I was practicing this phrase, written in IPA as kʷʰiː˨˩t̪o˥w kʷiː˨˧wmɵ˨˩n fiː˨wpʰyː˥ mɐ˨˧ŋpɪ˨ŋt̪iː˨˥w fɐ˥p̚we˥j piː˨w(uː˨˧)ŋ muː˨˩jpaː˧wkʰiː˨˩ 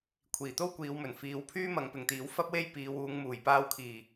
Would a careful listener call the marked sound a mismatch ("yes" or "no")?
no